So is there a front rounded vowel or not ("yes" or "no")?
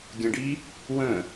no